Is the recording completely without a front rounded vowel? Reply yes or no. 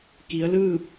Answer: yes